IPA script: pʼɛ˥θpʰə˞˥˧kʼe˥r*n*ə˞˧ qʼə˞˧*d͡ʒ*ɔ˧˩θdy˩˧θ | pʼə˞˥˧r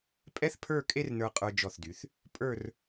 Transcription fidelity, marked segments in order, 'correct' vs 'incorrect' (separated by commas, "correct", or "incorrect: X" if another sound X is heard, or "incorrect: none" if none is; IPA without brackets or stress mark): correct, correct